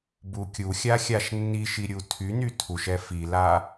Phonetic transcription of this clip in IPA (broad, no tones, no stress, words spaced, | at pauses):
bukʲuxʲa xʲaʃnːiʃi ɾʲutʰyny tʰuʃɛ fila